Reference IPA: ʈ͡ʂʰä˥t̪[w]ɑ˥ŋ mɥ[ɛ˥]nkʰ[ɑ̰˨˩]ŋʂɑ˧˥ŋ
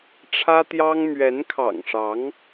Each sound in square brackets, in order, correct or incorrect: incorrect, incorrect, correct

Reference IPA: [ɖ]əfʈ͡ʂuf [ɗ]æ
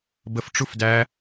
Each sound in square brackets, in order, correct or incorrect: incorrect, incorrect

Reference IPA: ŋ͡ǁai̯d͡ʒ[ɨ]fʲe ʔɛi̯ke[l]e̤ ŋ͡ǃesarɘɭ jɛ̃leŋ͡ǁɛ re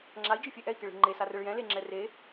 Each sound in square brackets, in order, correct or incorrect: correct, incorrect

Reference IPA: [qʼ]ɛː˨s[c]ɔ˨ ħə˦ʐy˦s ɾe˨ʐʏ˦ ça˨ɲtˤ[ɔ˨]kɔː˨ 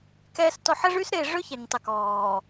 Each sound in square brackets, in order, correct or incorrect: incorrect, incorrect, incorrect

